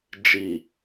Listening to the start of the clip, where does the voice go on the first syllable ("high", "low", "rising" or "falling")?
low